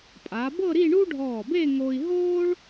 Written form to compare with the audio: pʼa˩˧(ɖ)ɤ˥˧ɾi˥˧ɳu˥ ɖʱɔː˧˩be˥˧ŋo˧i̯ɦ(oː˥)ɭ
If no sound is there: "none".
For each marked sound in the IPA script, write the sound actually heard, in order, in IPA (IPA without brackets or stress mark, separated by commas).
b, oː˥